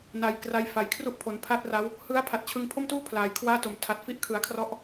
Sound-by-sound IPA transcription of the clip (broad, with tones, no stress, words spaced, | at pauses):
na˩˦j kra˧j fa˩˦jkʰru˥˩ʔpʰo˩˦n pʰa˥˩t̚ra˦˥w | hɯ˦˥a̯ pʰa˨˩t̚t͡ɕʰɯ˧ŋpʰo˥˩mtuː˥˩ pʰlaː˩˦jkʰwaː˥˩to˨˩m tʰa˨˩t̚fi˦˥ʔkʰɯ˩˦a̯kʰrɔ˦˥ʔ